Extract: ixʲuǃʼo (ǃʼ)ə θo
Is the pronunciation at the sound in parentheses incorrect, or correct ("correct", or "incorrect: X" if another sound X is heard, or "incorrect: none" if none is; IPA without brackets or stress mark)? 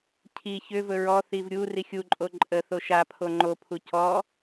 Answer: correct